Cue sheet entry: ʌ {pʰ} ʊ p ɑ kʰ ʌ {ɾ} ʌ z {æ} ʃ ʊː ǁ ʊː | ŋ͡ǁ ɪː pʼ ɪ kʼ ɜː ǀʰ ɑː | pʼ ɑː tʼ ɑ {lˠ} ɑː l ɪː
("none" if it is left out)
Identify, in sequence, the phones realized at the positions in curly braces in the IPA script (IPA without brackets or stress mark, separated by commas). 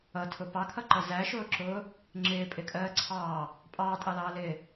tʰ, ǃ, æ, l